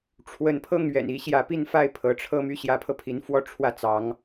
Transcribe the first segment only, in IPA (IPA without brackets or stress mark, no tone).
ʈ͡ʂʰ